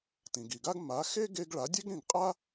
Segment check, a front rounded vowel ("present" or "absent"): absent